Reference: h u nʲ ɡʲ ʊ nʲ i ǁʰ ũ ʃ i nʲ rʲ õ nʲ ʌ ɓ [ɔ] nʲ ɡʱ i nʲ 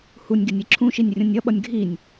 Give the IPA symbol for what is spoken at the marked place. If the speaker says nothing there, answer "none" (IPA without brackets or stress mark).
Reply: ʌ